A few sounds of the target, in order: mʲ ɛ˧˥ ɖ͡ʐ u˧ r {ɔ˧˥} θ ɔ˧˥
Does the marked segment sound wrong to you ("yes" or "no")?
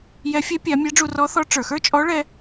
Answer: no